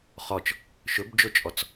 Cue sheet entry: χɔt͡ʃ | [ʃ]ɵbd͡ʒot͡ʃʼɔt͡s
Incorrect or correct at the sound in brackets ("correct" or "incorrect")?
correct